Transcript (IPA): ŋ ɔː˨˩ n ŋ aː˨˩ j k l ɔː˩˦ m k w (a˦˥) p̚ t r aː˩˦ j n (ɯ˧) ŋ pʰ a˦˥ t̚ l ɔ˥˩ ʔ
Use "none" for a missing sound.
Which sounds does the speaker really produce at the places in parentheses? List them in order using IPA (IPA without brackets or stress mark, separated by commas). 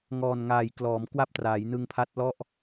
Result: a˦˥, ɯ˧